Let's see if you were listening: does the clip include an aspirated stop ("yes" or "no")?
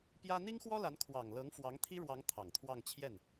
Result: yes